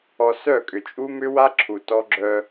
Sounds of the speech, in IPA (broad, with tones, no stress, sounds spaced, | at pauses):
ɔ˨ s œ˦˨ kʼ ʏ˨ t͡ʃʼ u˦ m ʏ˦ w a˦ ǁʰ u˨ t ɔ˦ ɡ͡ǁ œ˦